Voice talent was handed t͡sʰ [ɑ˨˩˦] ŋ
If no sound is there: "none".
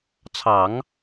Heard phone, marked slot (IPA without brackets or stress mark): ɑ˨˩˦